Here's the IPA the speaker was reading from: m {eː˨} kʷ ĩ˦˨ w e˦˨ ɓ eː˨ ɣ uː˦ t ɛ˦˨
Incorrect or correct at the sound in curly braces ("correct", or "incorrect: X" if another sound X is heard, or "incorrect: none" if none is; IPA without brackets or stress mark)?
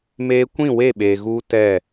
incorrect: eː˦